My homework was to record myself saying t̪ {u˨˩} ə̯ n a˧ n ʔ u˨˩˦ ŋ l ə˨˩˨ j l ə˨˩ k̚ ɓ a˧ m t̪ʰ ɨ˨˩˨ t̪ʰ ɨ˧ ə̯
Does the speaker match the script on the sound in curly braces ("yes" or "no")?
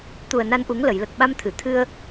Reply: yes